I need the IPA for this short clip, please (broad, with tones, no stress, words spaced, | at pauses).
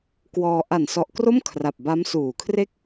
kwɔː˧ ʔa˨˩nsɔ˨˩ʔkro˥˩m kʰra˨˩p̚ba˦˥m suː˨˩kʰre˥˩k̚